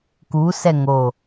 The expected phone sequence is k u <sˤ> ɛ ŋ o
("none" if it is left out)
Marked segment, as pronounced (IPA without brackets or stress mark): s